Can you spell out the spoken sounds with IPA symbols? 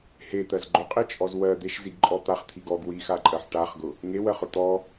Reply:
het̪ɜz ɡ͡ǃʊqʼit͡ʃʼɔz wɜ d̪eʃziɡǃʼɔ t̪aχt̪ʰiɡ ɔɡ wixaǃʼɜħ ʈaχɡʊ | ŋewɜχʊ t̪ɔ

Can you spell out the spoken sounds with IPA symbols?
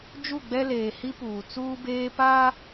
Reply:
d͡ʒu˦˨ɡ͡bɛ˦leː˨ hi˦puː˨ t͡suː˦beː˦paː˦

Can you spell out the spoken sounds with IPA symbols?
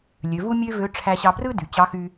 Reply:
lʲø˩˧vu˥mʲø˥vø˧˥ ʈ͡ʂʰæ˧ɕɑ˧brɯ˥ dy˩t͡ɕɑ˧˥xy˧

